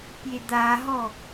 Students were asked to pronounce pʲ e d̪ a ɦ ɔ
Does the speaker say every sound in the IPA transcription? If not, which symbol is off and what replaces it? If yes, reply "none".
none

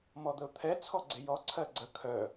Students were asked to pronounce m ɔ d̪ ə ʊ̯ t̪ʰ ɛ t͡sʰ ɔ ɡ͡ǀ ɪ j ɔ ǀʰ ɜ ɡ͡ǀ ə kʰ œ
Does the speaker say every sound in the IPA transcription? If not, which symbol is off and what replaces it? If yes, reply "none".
none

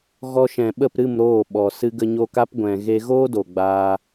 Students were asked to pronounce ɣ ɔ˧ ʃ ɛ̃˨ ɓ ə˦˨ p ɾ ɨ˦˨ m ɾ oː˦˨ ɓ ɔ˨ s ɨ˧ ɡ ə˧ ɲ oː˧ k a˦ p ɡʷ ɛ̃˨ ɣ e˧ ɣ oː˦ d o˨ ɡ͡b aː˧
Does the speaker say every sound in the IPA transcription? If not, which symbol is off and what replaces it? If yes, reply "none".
none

